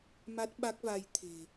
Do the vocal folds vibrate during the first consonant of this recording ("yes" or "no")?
yes